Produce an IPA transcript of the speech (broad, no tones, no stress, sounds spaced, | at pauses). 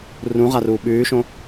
r ũ ʁ a r uː ɓ ʉː ʃ õ